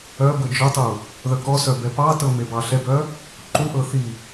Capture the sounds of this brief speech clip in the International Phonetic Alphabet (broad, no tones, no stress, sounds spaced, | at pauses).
œ b ɤ d͡ʒ œ tˤ u | ð œ k ɔ s œ b ɛ p ɑ t ɤ m e b ɑ ɬ ɛ b œ | ǃ u ʔ ɤ θ i